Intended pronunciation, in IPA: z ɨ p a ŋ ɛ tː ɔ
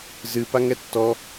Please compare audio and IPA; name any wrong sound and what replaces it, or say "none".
none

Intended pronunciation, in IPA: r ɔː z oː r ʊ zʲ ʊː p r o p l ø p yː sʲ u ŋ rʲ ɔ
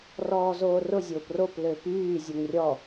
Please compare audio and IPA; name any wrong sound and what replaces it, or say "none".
sʲ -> zʲ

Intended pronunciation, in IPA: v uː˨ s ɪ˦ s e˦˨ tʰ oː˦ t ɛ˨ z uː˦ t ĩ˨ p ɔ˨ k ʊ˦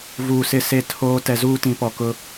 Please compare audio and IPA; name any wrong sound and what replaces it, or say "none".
none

